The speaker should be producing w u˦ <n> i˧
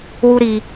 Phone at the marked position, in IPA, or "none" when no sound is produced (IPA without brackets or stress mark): ɾ